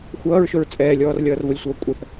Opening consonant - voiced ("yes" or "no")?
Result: no